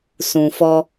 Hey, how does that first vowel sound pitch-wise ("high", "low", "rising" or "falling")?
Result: low